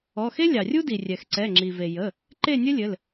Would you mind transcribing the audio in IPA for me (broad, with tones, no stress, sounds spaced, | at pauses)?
ɔ˩˧˩ x e˥ lʲ ɑ˩ rʲ u˥ d i˩ rʲ ɛ˩ x ǀ ɛ˩˧˩ ŋ͡ǁ i˩ v e˩ j ə˩˧˩ | ǃ e˥˨ nʲ ɘ˥ lʲ ɘ˩˧˩ l